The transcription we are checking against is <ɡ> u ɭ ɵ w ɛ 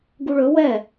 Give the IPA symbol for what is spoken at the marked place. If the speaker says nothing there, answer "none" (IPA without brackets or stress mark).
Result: ɡ